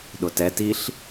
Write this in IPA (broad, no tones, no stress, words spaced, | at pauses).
ɗʊtɛ tiɬ